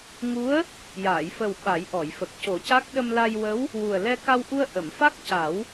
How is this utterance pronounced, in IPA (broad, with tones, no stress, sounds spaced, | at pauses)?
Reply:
ŋ u˧˥ ə̯ | j aː˨˩˨ j f ə˨˩ w ɓ a˨˩˦ j ʔ ɔ˨˩˨ j f ə˨˩ k̚ c o˨˩˦ c a˦˥ k̚ ɗ ə˧ m l a˧ j w ə˧˥ w | w u˨˩ ə̯ l ɛ˧ k a˧ w ʔ u˧ ə̯ ʔ ə˨˩˨ m f a˦˥ k̚ c a˨˩˦ w